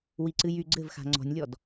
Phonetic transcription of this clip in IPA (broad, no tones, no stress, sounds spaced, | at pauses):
w i ǀ ɨ j y ɡ͡ǀ ɘ v x a̤ ŋ͡ǀ ɔ̤ nʲ lʲ ɔ d